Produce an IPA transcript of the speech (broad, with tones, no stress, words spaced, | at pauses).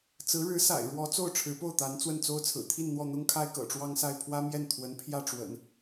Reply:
t͡sɹ̩˧˥ɻɻ̩˧˥sa̰˨˩ɪ̯ ɻwɔ˧˥ t͡so˥˩ʊ̯ʈ͡ʂʰɻ̩˧˥po˥˩ʊ̯t̪a˧˥n t͡swə˥˩nt͡so˥ʊ̯t͡sʰɹ̩˨˩ t̪ʰi˥˧n n̪wɔ˥˩n̪ʊ˥ŋkʰa˥ɪ̯ kɤ̰˨˩ʈ͡ʂwɑ˥ŋsa˥˩ɪ̯ pʰwä˥mjɛ˥˩n t̪ʰwə˧˥n pʰjä˥˩ʈ͡ʂwə̰˨˩˦n